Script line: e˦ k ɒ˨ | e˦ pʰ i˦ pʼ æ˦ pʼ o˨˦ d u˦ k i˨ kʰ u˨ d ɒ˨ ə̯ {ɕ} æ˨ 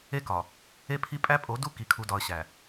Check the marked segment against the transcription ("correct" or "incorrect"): correct